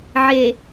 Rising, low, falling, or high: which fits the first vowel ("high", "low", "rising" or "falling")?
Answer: low